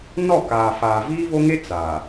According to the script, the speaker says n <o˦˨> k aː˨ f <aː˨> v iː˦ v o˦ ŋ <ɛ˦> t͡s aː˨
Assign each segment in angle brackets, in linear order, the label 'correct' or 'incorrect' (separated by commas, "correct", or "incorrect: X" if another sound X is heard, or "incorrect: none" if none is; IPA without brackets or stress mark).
incorrect: ɔ˦˨, correct, incorrect: e˦